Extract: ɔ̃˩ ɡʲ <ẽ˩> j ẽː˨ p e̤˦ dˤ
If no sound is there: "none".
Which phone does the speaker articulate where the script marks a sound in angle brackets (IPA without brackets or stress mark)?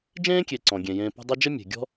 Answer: ẽ˩